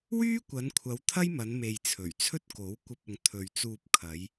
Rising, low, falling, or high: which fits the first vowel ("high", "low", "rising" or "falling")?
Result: high